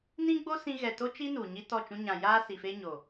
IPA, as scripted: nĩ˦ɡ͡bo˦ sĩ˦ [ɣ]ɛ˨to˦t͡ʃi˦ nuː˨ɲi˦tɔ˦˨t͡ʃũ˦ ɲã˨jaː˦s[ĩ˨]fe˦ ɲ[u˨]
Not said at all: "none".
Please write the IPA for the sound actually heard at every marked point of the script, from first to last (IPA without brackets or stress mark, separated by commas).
ɣ, i˨, o˨